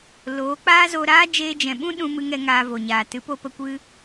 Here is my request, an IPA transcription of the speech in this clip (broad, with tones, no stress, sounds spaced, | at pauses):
l oː˨˦ k͡p aː˦ z o˧ ɾ aː˦ d͡ʒ eː˧ d͡ʒ ɛ̃˨ ɓ ũ˦ ɗ ũ˧ m ɨ˧ ŋ ɛ˧ ŋ aː˧ v o˨ ɲ aː˨ t ɨ˨˦ p o˧ p ə˧ kʷ ɨ˧